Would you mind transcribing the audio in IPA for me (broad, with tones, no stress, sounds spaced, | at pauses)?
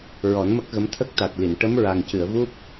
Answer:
ɹ ɔ˨˩˦ n m ə˦˥ k̚ ɣ ə˧˥ m t̪ʰ ə˦˥ k̚ t̪ a˨˩ t̚ l i˨˩˨ n ʈ ə˧˥ m ɹ a˨˩ ŋ c ɨ˨˩˨ ə̯ v u˦˥ p̚